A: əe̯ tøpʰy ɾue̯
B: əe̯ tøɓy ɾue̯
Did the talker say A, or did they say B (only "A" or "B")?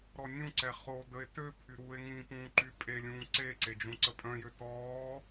A